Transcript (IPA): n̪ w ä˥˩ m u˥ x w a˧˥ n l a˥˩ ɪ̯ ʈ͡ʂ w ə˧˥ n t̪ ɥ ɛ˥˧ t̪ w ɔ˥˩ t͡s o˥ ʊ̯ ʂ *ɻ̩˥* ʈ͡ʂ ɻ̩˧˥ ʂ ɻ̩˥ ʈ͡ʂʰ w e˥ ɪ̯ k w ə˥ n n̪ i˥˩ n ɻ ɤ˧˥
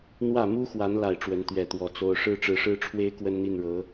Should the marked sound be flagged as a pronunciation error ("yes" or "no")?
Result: no